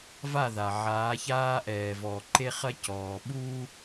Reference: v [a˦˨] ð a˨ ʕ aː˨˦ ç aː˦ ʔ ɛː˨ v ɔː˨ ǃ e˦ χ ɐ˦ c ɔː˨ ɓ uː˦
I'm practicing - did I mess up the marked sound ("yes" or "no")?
no